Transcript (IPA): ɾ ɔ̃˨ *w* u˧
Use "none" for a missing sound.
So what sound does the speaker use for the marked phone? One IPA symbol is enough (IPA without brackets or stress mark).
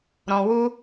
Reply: w